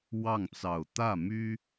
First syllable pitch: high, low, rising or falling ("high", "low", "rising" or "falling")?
falling